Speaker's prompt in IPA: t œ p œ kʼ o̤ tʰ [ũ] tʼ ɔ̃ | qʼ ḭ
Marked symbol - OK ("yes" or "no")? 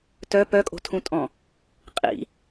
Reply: yes